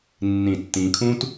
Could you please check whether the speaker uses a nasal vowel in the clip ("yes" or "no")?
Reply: yes